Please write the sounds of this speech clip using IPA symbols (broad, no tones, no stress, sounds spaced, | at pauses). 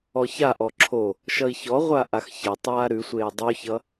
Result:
ɔ ç a ʔ ɔ ǁʰ o | ʃ ʌ i̯ ç ɔ ʁʷ a ʔ a x ç ɐ tˤ aː ɾ ʉ sʷ eː dˤ ʉ ç ʌ